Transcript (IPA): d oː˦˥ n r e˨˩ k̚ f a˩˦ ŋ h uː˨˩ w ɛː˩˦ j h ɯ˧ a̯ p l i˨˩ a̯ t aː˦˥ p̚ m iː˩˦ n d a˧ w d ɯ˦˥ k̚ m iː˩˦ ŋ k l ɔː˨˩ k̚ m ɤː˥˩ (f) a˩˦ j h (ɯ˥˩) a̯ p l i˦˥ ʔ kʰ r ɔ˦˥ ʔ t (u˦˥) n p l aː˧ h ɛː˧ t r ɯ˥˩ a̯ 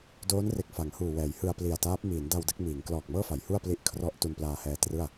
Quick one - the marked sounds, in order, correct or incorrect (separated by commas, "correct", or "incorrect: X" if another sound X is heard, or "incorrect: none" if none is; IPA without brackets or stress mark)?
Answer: correct, incorrect: u˥˩, incorrect: u˧